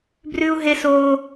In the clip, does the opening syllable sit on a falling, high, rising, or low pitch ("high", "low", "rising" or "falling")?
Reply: high